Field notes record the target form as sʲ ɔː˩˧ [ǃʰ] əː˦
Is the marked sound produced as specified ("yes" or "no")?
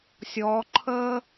yes